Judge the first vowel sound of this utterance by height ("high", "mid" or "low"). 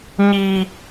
high